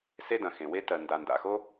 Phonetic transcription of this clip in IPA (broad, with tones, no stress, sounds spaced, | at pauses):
s e˥ d ɐ̃˩ x ẽ˩ w e˥ t ɜ˩ n d a˩ n d a̰˩ x o˥